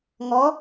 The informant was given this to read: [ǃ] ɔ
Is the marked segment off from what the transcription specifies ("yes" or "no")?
yes